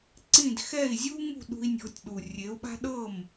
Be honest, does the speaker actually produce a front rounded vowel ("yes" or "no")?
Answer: no